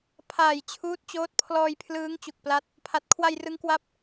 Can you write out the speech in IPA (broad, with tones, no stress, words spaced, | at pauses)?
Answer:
pʰaː˨˩jt͡ɕʰuː˦˥t̚t͡ɕoː˦˥t̚ pʰlɔː˧jpʰlɯː˦˥ŋ t͡ɕu˨˩k̚pla˦˥t̚ | pʰa˨˩t̚ kʰwa˧jrɯ˦˥ŋ kwa˥˩p̚